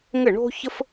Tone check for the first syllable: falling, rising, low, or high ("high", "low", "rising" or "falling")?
falling